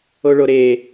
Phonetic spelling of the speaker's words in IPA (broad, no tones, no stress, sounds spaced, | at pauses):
o ɭ o ɾ eː